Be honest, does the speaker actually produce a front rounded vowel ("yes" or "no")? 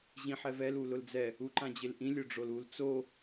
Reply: no